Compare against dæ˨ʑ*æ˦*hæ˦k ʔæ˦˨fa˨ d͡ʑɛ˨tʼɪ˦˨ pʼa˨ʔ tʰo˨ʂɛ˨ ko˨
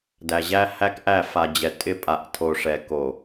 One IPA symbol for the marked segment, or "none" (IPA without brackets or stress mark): æ˦